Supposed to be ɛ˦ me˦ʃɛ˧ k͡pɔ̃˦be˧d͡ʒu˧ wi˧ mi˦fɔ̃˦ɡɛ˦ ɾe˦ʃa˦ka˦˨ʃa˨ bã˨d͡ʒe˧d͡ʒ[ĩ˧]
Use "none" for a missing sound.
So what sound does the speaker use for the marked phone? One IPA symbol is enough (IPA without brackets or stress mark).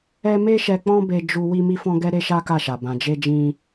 ĩ˧